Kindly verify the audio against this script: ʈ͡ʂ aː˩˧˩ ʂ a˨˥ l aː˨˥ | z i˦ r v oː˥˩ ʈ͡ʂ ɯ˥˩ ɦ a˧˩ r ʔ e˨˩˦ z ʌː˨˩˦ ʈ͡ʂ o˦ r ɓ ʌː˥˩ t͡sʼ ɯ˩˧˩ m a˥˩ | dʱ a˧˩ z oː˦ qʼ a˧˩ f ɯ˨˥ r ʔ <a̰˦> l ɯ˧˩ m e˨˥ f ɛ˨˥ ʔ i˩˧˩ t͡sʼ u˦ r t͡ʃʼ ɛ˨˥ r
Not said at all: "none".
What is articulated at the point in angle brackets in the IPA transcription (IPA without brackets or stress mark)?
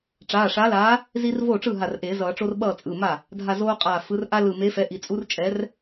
a˦